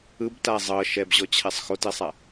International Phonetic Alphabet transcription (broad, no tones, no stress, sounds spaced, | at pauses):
ɯ b t a zˤ ɤ ʃ ɛ b ʑ ɔ t͡ɕʰ ɛ sˤ x o t e sˤ a